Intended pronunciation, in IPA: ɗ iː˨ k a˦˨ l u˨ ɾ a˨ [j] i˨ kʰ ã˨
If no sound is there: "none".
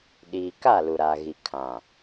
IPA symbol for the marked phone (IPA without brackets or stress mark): ɣ